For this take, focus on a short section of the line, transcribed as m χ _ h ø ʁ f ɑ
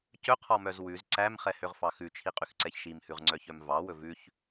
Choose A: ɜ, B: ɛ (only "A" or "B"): B